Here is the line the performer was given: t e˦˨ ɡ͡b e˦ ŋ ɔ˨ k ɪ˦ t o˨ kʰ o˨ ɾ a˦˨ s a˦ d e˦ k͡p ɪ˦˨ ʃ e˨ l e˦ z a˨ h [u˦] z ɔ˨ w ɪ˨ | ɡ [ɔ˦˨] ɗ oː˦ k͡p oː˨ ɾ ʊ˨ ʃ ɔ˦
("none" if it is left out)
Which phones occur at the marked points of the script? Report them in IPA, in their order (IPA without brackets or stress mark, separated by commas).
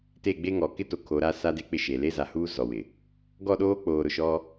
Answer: uː˦, ɔ˦˨